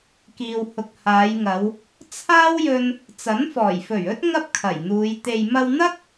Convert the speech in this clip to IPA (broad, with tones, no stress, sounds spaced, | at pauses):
k iː˨ w h ʊ˨ k̚ h aː˨˧ j ŋ ɐ˨˧ w | t͡sʰ aː˥ w j ɵ˧ n | t͡s ɐ˨˥ n f ɔː˨˩ j f ɵ˨˩ ɥ ɵ˥ t̚ ŋ ɐ˥ p̚ kʰ ɐ˨˩ j n̪ uː˨˧ j t̪ e˨ j m ɐ˧ w n̪ ɐ˥ k̚